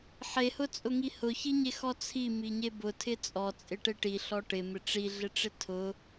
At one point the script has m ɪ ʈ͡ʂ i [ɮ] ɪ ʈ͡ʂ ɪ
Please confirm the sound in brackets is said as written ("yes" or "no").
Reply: yes